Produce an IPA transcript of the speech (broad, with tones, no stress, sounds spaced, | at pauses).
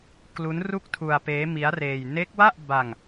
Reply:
k l u˦˥ n r u˥˩ k̚ tʰ u˧ a̯ p eː˦˥ m i˦˥ a̯ r eː˧ j n e˦˥ k̚ w a˥˩ ʔ b a˧ ŋ